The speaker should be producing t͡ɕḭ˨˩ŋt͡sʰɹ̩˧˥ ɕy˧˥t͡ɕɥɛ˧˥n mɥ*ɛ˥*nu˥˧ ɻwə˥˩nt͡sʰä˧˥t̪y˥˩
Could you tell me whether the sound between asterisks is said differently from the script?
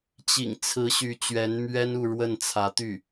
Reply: no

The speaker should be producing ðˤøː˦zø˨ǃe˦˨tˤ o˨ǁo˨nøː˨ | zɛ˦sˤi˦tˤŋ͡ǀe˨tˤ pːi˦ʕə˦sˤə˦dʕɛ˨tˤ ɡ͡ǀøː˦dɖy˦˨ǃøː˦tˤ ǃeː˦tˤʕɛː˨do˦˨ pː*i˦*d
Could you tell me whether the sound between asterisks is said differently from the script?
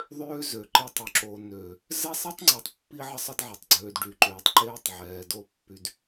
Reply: yes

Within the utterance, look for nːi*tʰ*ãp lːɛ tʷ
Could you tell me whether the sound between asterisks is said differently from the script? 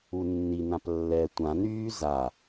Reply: yes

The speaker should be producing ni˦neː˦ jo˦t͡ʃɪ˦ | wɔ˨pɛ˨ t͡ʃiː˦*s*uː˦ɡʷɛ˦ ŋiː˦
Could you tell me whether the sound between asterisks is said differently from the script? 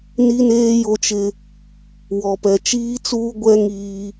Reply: yes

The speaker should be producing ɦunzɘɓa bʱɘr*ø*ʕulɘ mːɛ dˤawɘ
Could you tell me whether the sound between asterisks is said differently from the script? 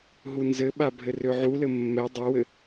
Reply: no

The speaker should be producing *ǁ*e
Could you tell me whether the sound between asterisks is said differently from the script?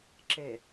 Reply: no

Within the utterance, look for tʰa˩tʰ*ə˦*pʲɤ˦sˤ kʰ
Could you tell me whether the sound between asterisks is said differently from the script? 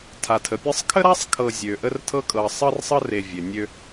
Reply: yes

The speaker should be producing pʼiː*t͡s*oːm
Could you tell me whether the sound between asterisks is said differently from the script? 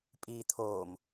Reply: yes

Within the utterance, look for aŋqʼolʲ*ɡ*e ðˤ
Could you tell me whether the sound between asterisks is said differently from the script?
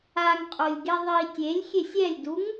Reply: no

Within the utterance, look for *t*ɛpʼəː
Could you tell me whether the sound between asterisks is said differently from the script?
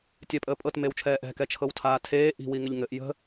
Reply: yes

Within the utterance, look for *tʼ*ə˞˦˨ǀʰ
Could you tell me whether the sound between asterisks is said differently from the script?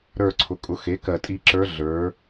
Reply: yes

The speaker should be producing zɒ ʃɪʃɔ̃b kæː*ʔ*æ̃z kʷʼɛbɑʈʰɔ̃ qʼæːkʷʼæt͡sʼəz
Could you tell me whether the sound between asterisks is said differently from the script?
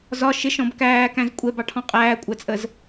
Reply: yes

